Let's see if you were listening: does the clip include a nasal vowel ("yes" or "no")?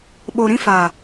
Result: yes